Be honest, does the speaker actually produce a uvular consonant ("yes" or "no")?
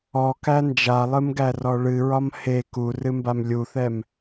no